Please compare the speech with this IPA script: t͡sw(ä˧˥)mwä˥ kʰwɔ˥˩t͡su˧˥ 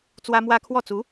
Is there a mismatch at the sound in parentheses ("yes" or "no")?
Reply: yes